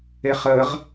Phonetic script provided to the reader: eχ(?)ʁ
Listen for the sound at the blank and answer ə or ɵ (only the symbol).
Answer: ə